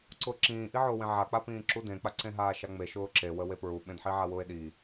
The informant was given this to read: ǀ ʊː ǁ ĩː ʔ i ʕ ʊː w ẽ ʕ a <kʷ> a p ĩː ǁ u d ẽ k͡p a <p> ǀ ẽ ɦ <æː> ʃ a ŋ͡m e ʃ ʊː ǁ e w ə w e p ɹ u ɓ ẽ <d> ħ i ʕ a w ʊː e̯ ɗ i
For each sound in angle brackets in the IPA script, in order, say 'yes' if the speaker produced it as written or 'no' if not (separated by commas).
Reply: no, no, no, yes